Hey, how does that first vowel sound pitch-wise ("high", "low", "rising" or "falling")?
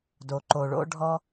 low